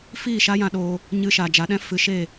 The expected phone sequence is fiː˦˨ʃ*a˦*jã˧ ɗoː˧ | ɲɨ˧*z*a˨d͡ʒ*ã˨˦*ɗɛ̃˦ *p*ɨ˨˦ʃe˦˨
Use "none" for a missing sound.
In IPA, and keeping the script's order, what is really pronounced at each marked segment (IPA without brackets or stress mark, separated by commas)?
a˦, ʃ, a˨˦, f